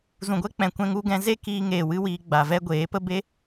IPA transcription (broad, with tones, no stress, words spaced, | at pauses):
zũ˨ɡʷɛ˦ k͡pɛ̃˨kʷɛ̃˧ŋu˧ɡɛ̃˧ ze˦kiː˧ŋeː˨wɨ˧ wiː˧ɡ͡ba˨vɛ˦ ɡʷeː˨˦ pə˦be˦